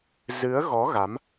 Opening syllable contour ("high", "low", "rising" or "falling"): rising